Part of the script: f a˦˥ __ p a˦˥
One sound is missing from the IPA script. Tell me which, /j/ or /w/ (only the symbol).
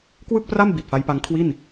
j